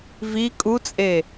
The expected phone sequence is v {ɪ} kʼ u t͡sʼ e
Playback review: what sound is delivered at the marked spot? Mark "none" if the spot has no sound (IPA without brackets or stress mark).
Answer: i